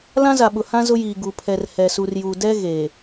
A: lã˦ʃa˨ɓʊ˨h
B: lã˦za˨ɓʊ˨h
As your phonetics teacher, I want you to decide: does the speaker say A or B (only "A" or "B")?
B